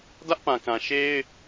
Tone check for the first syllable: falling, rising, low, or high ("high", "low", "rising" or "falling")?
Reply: high